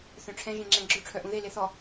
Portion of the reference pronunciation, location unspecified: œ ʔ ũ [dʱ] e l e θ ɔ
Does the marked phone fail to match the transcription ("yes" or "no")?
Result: yes